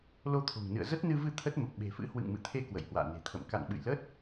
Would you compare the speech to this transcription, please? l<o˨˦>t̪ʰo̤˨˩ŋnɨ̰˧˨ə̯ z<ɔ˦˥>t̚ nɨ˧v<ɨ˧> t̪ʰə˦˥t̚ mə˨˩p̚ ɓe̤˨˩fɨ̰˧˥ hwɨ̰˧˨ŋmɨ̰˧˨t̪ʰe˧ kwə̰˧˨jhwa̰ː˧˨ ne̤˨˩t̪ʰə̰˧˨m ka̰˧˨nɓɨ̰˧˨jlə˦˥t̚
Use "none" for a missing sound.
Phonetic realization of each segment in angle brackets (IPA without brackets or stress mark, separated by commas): o˧, ə˦˥, ɨ˧